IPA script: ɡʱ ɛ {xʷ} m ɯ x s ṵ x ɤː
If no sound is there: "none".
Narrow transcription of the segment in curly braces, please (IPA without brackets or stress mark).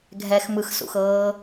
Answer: x